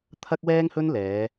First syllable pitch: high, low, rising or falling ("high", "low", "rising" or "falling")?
high